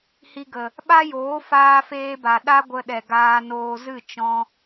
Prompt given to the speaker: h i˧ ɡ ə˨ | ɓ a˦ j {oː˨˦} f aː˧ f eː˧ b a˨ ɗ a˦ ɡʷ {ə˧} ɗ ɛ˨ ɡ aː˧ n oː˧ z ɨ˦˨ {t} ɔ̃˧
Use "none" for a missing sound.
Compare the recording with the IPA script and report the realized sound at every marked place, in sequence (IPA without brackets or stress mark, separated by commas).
oː˨˦, ə˧, t͡ʃ